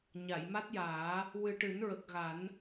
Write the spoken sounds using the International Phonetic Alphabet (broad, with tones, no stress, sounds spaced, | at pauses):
ɲ a˨˩˨ j m a˦˥ t̚ j aː˨˩˦ | w ɨ˨˩ ʈ ɨ˨˩˦ n ɹ ə˨˩ k̚ ɣ a˨˩˦ n